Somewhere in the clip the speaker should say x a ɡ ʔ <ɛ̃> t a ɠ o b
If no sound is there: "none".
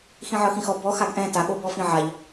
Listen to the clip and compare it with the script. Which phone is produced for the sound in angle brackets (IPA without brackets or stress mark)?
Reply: ɛ̃